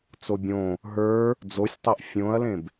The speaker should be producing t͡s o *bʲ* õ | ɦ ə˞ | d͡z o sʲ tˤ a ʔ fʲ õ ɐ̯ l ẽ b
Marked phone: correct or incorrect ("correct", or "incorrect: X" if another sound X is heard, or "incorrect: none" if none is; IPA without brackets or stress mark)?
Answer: correct